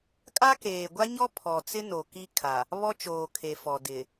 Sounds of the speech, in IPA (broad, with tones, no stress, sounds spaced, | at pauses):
kʼ a˦ k eː˨ ɡʷ a˦ ɲ ɔ˦ pʰ ɔ˨ t͡s ɪ˦ n o˨ k i˦ kʰ a˨ | β ɔ˦ t͡ʃ oː˨ kʰ e˨ f ɔ˨ d ɪ˨